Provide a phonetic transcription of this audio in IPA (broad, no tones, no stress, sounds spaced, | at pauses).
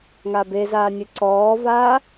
ŋ a b e z aː nʲ ɨ ǀ ɔː v aː